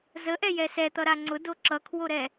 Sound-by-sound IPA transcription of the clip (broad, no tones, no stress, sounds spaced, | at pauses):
z ə ʔ ɛ j ɛ s ɛ t̪ ʌ ɾ a ŋ͡ǀ ʊ d o ǁ ʌ kʰ w o ɾ ɛ